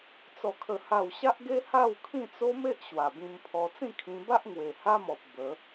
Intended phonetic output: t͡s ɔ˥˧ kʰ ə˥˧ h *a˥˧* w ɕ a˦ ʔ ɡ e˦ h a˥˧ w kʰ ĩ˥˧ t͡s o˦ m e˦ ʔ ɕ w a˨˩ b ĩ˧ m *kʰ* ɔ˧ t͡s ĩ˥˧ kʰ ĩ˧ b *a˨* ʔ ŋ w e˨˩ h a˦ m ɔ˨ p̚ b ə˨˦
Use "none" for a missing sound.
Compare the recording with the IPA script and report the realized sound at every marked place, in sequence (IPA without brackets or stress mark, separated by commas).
a˥˧, pʰ, a˦